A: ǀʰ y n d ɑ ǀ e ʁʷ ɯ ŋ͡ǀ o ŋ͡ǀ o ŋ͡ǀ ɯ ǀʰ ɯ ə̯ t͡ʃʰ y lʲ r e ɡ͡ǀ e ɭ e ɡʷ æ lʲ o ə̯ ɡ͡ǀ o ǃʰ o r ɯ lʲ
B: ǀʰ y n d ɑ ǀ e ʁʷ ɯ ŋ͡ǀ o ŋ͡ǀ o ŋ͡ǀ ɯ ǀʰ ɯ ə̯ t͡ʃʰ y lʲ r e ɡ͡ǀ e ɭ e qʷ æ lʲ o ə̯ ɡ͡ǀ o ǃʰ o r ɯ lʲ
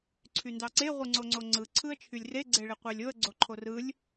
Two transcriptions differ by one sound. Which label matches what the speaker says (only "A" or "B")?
B